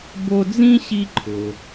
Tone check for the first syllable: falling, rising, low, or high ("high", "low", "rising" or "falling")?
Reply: high